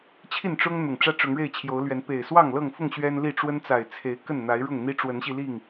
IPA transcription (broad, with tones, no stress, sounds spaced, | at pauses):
t͡ɕʰ i˥˨ n ʈ͡ʂ ʊ˦ ŋ n̪ ʊ˨˩ ŋ ʈ͡ʂ ä˦ ʈ͡ʂ ʊ˨˦ ŋ ɻ e˥˨ ɪ̯ t͡ɕʰ j o˨˦ ʊ̯ l ɥ ɛ˨˦ n p e˨˩ ɪ̯ s w ɑ˥˨ ŋ l ɤ˥˨ ŋ f ʊ˥˨ ŋ ɕ ɥ ɛ˦ n l i˥˨ ʈ͡ʂ w ə˦ n t͡s a˨˩ ɪ̯ t͡sʰ e˨˦ ɪ̯ k ə˥˨ n n̪ a˨˦ ɪ̯ ɻ ʊ˥˨ ŋ n̪ i˦ ʈ͡ʂ w ə˨˦ n ɕ i˧ l i˥˨ ŋ